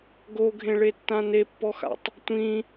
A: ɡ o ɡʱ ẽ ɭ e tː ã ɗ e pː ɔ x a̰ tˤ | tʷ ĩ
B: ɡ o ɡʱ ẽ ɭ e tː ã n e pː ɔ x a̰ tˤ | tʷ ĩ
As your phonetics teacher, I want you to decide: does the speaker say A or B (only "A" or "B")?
B